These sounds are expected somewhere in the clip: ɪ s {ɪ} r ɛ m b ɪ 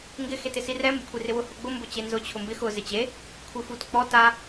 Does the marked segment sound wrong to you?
yes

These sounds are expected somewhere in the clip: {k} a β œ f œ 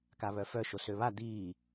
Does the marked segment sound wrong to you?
no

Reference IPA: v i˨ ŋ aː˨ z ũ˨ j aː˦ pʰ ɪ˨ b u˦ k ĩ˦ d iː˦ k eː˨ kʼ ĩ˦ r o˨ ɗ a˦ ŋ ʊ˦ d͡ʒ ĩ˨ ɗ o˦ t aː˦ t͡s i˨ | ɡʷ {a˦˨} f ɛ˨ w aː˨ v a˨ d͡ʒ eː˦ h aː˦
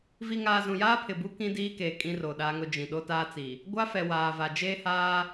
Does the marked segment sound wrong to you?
yes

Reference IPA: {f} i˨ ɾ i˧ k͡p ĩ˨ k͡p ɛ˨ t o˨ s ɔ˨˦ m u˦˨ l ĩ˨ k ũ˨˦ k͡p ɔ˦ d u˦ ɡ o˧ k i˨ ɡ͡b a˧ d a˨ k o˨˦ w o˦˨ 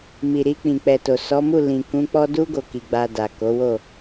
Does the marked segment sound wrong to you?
yes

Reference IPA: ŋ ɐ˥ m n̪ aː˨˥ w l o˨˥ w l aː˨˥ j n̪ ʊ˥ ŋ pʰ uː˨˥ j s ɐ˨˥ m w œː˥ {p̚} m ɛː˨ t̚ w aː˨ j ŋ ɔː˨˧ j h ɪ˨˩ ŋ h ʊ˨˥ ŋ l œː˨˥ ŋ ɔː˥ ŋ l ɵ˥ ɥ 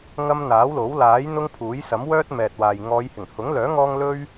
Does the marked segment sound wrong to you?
yes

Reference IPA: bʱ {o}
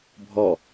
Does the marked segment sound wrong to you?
yes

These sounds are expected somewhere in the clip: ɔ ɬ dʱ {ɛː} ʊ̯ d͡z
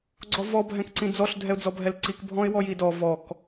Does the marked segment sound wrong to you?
yes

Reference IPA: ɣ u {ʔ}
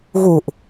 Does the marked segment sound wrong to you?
no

